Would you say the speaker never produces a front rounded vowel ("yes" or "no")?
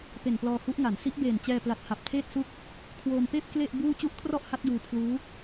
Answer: yes